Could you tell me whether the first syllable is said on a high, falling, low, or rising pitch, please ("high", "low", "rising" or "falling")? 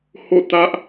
falling